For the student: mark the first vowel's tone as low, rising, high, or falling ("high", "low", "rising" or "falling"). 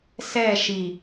falling